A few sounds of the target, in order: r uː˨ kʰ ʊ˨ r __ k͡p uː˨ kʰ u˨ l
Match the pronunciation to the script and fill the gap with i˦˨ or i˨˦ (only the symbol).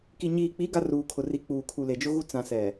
i˨˦